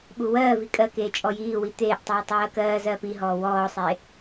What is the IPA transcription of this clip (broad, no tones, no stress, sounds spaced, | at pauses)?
ɓ u w ɜː v i kʼ ɜ k eː t͡ʃʼ ɔ j iː w i t̪ eː ʔ tˤ iː tˤ ɜː k ɜː z ɜː p i ɦ ɔː w ɔː sˤ e